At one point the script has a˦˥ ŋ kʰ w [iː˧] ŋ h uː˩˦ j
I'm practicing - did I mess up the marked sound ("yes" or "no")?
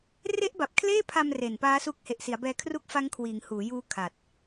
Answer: yes